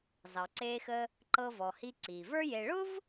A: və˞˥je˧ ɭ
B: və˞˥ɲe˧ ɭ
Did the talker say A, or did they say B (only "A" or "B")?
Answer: A